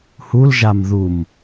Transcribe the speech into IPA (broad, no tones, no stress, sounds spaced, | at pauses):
h u l ʒ a m ð u m